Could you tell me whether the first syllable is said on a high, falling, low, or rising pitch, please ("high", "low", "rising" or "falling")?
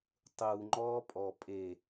low